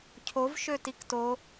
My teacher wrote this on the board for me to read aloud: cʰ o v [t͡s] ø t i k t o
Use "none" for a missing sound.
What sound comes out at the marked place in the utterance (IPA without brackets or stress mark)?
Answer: ʃ